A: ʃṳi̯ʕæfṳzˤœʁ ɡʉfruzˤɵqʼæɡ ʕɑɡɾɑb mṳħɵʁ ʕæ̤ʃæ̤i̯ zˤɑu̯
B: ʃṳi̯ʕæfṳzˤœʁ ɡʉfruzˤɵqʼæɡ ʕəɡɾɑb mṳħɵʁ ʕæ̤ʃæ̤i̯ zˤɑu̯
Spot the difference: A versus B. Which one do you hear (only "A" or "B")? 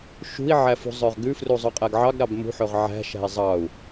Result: A